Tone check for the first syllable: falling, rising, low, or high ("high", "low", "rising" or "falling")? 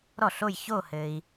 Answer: falling